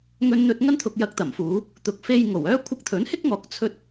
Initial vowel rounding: rounded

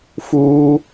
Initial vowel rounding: rounded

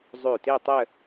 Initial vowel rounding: rounded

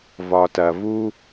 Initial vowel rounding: rounded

